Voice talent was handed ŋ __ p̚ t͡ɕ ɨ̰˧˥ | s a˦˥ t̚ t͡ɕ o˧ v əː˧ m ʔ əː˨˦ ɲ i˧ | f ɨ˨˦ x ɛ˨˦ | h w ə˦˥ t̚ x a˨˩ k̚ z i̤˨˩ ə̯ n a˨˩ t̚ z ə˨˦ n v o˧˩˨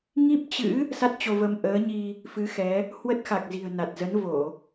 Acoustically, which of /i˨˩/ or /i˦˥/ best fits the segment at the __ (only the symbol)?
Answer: i˦˥